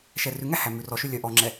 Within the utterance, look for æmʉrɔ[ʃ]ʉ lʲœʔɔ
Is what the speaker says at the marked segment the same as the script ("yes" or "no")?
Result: yes